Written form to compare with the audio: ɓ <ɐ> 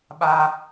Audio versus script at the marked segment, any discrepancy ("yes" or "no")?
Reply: yes